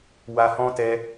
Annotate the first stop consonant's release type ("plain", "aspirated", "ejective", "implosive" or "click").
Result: plain